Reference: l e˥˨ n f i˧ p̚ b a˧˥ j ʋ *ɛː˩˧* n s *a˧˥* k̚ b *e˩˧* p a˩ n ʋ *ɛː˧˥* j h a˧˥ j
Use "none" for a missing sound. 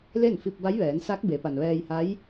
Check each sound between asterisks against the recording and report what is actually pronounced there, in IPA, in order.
ɛː˩˧, a˧˥, e˩˧, ɛː˧

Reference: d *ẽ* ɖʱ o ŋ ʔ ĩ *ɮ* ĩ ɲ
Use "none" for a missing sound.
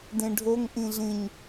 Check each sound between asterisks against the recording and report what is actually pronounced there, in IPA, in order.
ẽ, ɮ

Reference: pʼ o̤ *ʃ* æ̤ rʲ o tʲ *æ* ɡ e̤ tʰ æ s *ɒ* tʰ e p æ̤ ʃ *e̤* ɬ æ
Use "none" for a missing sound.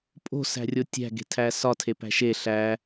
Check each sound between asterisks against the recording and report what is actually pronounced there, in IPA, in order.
s, æ̤, ɒ, e

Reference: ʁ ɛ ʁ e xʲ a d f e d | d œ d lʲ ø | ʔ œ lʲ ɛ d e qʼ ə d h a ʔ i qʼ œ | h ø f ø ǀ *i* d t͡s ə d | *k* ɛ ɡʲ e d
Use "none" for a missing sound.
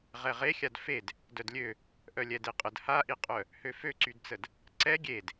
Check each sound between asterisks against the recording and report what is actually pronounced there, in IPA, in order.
y, ǀ

